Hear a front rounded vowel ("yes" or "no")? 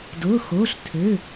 yes